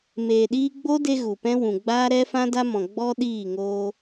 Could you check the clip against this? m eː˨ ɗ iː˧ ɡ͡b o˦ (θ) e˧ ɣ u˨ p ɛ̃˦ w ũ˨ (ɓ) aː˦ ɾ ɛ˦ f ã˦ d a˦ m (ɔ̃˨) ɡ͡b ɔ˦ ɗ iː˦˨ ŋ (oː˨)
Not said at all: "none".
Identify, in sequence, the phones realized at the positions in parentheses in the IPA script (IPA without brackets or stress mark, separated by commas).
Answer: d, ɡ͡b, ɔ̃˨, oː˧